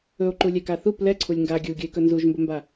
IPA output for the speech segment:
ɵ o̯ ǃ u lʲ ɛ k a θ u p l ɛ ǀʰ u lʲ ŋ ɡ a ɡʲ u ɡʲ ɵ e̯ k ɵ n z u ʒ m b ɵ m b a

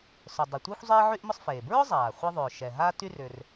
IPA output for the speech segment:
s ʊ˩ dˤ ɛ˩ tʷ iː˥ xʷ zˤ eː˥ ʕ y˥ ʔ m ʊ˥ sˤ f eː˩ b ɹ ʊ˥ zˤ aː˩ χʷ a˥ ðˤ ʏː˩ ʃ ɛ˩ ɦ aː˥ t y˥ r ʏː˩ r

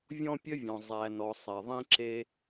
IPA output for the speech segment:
vʲ ɔ̃˦ pʲ ə˦ vʲ ɔ̃˨ zˤ æ˨ n ɔ˨ sˤ e˨ ðˤ ĩ˦ ǁ e˦

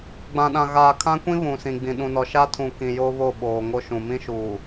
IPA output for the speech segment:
ɡ͡b ã˨ ɗ ã˨ ɣ aː˨ kʰ ã˦ kʷ ĩ˦ β ũ˨ s ĩ˨ ɡ͡b ĩ˨ ɗ ũ˨ n ɔ˨ ʃ a˦ tʰ ũ˨ k ĩ˨ j o˦ β o˦˨ ɓ oː˨ ŋ o˦ ʃ ũ˨ m ĩ˦ ʃ u˨

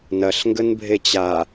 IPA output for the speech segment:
n ɐ ɬ ŋ ɡ ə n bʱ e t͡ɕ a

